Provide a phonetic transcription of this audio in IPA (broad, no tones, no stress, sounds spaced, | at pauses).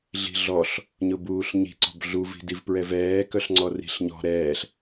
ɮ i̤ ɮ ɔ ɬ | ɲ ʊ b uː ɬ ɲ i̤ ǀ ɔ̤ b ɮ u v i̤ d i v p ɹ ɛ v ɛː k œ ɬ ŋ͡ǀ ɔ r i̤ ɬ ɲ ɔ̤ ɾ ɛː ɬ